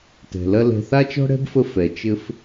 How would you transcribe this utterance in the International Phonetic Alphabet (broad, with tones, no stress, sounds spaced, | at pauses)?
t ɛ̤˨ l ɐ˥ l ɛ̤˦ θ a˥ t͡ʃ ɔ̤˥ ɽ ɛ̤˥ b f ə˦ f ɛ˨ t͡ʃ ɘ˥ f